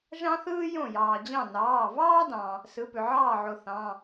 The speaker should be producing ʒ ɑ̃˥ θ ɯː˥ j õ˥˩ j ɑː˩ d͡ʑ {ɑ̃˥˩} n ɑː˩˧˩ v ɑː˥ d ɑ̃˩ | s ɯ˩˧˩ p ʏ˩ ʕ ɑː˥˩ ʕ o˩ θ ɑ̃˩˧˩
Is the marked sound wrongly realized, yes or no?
no